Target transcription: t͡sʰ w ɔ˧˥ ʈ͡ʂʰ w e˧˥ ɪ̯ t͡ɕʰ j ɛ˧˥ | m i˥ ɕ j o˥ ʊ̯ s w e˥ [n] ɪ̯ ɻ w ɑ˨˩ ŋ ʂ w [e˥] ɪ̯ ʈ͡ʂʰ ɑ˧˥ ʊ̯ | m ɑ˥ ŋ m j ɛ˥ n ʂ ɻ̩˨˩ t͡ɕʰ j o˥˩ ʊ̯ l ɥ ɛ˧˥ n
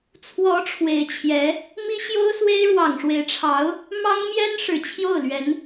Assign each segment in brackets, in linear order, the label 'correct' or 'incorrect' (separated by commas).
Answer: incorrect, incorrect